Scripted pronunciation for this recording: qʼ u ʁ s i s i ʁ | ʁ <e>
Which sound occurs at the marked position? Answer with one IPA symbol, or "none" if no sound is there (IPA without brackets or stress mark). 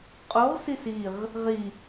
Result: i